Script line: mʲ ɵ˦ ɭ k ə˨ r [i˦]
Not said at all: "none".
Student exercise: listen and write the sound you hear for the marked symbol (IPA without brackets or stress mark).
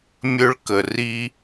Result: i˦